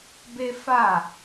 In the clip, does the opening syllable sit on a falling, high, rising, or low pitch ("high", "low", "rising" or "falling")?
high